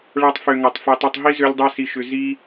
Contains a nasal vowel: no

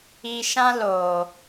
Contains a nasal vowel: yes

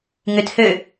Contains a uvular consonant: no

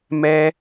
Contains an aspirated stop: no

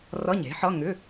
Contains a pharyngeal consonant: yes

